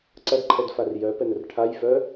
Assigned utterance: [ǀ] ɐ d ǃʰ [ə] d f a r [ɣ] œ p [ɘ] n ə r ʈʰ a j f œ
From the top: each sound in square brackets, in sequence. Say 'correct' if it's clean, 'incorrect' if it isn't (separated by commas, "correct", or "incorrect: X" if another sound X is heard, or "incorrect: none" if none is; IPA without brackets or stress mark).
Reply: correct, incorrect: ɛ, incorrect: j, incorrect: ɛ